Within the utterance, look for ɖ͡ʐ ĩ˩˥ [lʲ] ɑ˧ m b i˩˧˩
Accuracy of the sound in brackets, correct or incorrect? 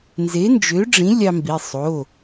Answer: correct